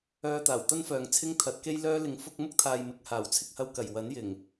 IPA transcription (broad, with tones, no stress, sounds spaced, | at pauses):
œː˧ t̪ aː˨˩ w t̪ ɐ˥ n f œː˨ ŋ t͡sʰ ɪ˥ ŋ t̪ʰ ɐ˨˥ t̚ k e˥ j l œː˥ l ɪ˧ ŋ f ʊ˥ k̚ m ʊ˥ k̚ t̪ʰ aː˨ j m ɪ˨˥ k̚ h aː˨˩ w t͡sʰ ɪ˥ k̚ h ɐ˧ w k ɐ˨˩ j w ɐ˨˥ n j ɪ˨˩ ŋ